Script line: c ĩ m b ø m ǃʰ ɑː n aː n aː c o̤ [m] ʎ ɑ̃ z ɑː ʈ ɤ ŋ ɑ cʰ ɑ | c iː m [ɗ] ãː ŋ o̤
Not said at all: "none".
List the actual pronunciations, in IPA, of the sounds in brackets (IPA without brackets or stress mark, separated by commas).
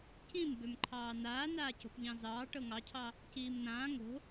p, n̪